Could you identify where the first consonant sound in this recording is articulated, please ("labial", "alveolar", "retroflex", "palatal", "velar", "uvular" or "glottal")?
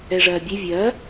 retroflex